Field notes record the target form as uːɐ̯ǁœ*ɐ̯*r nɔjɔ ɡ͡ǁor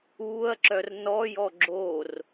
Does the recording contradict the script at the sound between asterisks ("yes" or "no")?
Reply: yes